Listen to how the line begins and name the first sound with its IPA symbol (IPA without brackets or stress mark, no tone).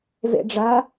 v